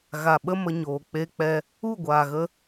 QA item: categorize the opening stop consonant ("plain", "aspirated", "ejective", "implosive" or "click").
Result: implosive